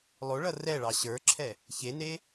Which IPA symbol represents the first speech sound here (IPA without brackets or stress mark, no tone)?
lˠ